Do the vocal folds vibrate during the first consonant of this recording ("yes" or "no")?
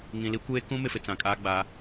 yes